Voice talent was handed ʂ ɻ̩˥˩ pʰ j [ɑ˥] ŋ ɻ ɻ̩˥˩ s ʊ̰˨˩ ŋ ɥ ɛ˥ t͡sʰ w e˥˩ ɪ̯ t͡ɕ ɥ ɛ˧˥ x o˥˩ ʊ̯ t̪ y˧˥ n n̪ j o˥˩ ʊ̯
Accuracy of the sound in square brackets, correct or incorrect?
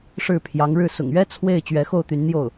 incorrect